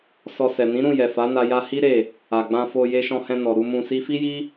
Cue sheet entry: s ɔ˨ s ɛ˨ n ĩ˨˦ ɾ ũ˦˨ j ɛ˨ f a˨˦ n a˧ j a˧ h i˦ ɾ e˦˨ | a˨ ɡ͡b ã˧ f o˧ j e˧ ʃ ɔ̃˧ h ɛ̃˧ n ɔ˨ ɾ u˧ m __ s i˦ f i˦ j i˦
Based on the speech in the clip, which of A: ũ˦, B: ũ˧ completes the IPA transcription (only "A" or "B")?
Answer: B